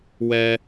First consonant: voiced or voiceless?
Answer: voiced